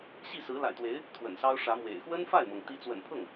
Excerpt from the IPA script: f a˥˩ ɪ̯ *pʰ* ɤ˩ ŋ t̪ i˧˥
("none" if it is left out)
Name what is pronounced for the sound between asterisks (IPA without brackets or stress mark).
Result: m